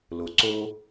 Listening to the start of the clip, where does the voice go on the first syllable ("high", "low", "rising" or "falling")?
low